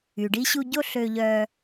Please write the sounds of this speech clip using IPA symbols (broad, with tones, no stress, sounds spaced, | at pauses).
y˩ ɖ i˧ ɕ u˧ ɟ o˥ ɬ ø˧ ʎ œ˧